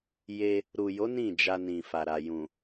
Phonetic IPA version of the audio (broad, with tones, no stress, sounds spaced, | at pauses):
j e˧ | ɾ u˨ j o˨˦ n ĩ˦˨ d͡ʒ a˧ n ĩ˨ f a˨ ɾ a˨ j ũ˨